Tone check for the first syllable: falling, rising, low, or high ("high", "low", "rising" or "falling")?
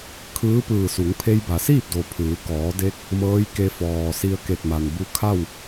rising